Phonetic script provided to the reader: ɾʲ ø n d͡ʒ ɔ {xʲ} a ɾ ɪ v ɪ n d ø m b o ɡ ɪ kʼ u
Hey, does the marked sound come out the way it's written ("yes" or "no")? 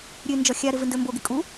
yes